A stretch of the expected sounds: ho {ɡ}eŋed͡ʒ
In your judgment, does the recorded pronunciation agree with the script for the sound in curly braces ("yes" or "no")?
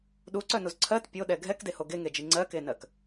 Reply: yes